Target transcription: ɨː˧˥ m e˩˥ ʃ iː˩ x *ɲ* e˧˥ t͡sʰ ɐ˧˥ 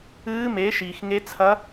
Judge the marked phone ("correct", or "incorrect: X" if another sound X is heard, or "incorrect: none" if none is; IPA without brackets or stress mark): incorrect: ŋ